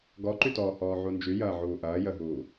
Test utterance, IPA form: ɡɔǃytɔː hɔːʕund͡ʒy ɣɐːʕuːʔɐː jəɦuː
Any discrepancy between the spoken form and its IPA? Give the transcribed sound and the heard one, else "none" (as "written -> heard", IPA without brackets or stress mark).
ɣ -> j